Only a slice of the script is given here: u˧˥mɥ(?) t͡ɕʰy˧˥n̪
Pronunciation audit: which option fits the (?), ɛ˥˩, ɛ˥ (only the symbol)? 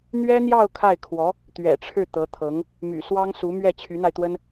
ɛ˥˩